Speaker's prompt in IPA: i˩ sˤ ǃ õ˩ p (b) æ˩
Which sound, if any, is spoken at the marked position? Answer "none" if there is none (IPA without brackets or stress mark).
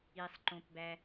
b